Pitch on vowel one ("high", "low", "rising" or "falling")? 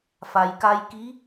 low